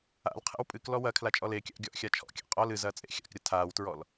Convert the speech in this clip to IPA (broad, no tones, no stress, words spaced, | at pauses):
a̰lqʰḛw pʼɨklɔ wɐ kʰlat͡ʃʼɔlekʲa̰ʔ ɡʲɔʔxʲat͡ʃʰɔ̰kʲa̰ qʼɔl ɨzɐː t͡sʼḛxʲa̰kɾʲɐ tʰaːwtɹɔl